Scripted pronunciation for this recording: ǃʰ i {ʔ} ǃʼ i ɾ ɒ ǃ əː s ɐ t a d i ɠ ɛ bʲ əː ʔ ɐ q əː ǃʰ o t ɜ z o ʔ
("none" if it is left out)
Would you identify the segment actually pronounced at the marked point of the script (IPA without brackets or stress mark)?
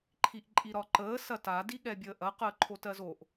ʔ